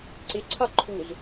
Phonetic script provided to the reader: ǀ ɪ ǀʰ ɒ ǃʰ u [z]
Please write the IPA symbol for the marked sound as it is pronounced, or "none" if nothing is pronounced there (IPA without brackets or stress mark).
z